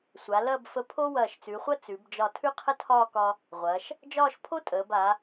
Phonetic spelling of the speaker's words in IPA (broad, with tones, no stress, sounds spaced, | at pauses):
sʷ a˩˧ l ɐ˥˧ b f ə˧ pʰ o˥ w ɐː˧˩ ʃ t͡s ʉ˩˧ χʷ ɐ˥ t͡s ʉ˩˧ b d͡ʒ ɒ˧˩ tʰ ʉ˥ qʰ ə˥ tʰ ɒː˥˧ k ɒ˧ | ʁʷ ɐː˩˧ ʃ | d͡ʒ ɒː˥˧ ʃ pʰ o˥ tʼ əː˩˧ b a˩˧